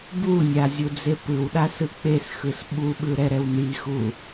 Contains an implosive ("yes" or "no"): yes